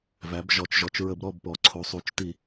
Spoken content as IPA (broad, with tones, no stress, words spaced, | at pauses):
væ˩˧b ʒɔ˩˧t͡ʃʒɔ˩˧t͡ʃ ɹə˧˩˧bɾɔ˥˨bpɔ˩˧ ǀʰo˩˧sˤu˩˧t͡ʃ ti˧˩˧